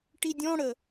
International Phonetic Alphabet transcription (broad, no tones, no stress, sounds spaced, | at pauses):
ʈ i dʲ ɔ̃ ɽ ə